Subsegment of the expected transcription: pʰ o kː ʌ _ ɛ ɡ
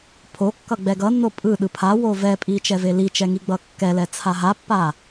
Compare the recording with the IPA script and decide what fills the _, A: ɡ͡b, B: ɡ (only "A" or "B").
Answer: A